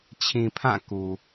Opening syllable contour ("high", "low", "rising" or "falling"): low